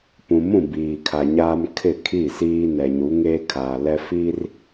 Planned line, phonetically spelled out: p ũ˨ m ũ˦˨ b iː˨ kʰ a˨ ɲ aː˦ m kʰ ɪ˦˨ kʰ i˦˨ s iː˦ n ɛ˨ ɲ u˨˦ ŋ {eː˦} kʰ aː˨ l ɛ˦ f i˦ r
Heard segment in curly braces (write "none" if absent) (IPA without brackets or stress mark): eː˦